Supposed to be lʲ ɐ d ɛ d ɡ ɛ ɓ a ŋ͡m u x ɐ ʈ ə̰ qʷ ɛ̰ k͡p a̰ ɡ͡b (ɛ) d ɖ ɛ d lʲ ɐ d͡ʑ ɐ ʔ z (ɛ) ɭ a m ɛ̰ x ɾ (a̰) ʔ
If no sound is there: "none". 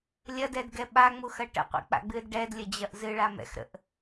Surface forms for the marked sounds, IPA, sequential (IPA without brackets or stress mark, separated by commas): ɨ, ɨ, ə̰